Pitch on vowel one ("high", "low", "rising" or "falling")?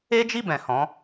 high